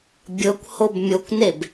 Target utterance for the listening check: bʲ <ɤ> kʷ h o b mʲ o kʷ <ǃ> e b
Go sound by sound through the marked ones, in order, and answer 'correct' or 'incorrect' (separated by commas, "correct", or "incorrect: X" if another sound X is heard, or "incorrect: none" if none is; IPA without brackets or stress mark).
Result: correct, incorrect: n